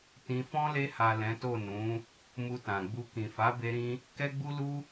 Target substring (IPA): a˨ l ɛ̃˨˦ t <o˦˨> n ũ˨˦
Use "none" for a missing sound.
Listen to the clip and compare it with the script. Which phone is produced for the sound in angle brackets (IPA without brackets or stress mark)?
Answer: o˦˨